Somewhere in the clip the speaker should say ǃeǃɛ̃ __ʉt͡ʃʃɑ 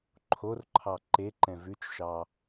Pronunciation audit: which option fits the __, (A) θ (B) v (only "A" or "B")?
B